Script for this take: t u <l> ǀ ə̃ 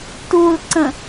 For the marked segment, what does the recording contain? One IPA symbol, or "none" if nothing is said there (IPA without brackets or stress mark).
l